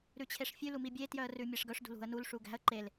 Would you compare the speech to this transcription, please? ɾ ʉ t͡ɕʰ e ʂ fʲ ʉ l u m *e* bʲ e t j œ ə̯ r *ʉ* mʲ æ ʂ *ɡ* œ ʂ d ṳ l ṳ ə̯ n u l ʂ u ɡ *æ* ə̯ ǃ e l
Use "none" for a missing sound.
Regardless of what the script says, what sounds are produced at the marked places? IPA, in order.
i, ʉ, ɡ, æ̤

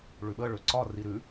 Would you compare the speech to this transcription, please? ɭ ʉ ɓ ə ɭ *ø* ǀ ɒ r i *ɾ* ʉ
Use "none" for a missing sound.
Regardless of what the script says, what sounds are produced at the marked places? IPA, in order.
ø, ɾ

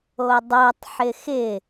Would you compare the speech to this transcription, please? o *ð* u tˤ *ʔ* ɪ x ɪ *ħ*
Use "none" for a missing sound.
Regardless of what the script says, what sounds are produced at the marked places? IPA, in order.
dˤ, ħ, none

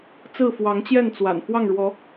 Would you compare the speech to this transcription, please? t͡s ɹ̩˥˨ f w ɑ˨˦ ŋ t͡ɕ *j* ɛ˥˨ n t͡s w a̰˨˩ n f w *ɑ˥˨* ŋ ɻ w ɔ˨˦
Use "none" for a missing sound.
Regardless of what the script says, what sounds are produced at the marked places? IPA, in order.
j, ɑ˥˨

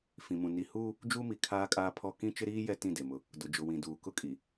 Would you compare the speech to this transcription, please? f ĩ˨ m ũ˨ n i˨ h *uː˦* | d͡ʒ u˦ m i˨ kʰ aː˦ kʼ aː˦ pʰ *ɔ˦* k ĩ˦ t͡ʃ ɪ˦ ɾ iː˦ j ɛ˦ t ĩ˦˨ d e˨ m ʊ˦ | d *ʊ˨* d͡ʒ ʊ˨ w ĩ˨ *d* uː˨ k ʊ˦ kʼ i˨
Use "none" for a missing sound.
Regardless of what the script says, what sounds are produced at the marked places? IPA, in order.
uː˦, ɔ˦, ʊ˨, d

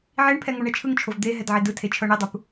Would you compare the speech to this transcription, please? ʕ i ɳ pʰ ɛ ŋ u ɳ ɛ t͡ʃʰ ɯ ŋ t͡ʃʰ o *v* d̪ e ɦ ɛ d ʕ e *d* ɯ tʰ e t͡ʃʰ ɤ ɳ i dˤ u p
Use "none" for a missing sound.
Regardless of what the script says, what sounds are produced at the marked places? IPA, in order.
v, d

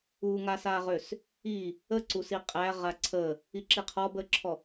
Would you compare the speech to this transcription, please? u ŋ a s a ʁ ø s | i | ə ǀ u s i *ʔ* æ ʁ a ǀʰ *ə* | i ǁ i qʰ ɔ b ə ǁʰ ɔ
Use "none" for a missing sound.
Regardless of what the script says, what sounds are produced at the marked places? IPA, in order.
qʼ, ə

